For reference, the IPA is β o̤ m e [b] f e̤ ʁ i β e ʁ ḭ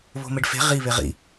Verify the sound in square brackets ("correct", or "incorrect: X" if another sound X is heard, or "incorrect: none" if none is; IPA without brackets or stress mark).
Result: incorrect: ɖ